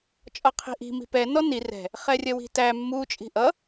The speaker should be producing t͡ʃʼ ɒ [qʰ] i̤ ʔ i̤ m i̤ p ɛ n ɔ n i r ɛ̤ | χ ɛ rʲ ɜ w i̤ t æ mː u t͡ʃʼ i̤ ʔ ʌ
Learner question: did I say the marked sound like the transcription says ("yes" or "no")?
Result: yes